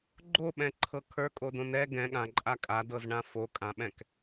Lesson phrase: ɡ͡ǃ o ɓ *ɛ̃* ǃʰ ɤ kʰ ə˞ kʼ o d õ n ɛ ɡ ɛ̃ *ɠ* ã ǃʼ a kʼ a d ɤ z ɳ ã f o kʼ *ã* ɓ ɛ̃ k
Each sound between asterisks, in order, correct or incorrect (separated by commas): correct, correct, correct